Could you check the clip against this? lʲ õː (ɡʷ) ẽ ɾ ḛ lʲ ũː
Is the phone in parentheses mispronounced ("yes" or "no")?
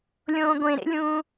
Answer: no